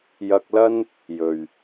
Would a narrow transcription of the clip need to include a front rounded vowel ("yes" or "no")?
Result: no